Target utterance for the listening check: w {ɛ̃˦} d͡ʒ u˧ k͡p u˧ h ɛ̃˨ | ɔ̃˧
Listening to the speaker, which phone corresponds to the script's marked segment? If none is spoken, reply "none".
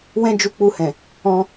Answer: ɛ̃˦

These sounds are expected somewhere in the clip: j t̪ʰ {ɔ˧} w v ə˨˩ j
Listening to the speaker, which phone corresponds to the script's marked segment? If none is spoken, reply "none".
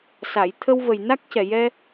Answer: ə˧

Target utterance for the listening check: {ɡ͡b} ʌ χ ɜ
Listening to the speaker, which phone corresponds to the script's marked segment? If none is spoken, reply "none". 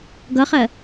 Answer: ɡ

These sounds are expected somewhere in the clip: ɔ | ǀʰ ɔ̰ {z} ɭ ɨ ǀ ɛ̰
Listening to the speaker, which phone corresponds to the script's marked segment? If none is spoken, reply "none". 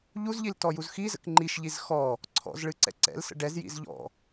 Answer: z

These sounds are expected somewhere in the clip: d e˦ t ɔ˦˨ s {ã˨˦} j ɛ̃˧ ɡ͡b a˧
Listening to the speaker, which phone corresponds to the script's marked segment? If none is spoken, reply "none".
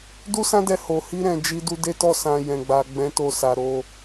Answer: ã˧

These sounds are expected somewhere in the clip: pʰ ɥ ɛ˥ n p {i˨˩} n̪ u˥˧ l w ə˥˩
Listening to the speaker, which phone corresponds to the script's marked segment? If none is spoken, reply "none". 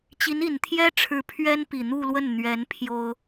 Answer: i˨˩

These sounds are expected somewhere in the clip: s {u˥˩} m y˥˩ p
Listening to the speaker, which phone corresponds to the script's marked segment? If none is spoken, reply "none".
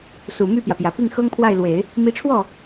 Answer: u˨˩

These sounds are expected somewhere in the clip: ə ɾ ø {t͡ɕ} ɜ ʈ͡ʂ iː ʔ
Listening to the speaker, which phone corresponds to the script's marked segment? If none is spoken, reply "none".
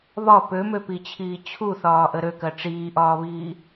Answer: k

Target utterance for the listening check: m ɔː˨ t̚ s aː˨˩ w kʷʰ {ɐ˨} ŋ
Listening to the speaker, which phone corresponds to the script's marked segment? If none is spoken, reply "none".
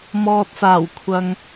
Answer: ɐ˨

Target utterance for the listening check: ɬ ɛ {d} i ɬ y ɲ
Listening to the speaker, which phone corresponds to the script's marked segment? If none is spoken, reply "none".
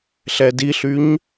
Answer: d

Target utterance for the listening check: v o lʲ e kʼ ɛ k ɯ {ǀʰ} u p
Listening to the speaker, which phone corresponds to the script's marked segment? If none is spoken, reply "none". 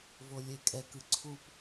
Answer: ǀʰ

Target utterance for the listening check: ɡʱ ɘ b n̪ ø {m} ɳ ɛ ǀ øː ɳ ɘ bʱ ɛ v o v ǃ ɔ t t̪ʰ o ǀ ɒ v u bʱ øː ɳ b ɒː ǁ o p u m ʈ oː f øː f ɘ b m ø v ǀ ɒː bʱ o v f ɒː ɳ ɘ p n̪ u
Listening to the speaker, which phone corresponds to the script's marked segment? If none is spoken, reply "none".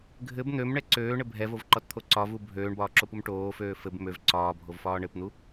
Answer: m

